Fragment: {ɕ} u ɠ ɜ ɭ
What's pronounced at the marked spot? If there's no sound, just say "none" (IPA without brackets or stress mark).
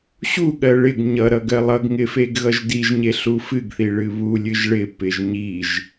ɕ